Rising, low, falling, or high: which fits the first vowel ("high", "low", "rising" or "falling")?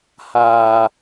low